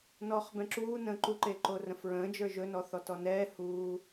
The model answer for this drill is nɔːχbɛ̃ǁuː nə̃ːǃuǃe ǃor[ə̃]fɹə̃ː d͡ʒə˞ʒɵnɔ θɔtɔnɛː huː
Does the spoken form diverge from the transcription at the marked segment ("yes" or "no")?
no